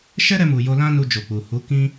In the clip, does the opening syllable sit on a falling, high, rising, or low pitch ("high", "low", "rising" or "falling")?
high